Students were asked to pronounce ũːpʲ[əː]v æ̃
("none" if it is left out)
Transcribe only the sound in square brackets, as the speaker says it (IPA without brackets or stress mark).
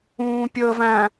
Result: əː